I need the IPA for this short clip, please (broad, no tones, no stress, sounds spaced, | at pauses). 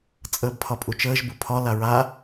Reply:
t͡sʼ əː b pʰ ɒ pʼ u t͡ʃ əː ʒ b u pʰ ɒ l a ɹ a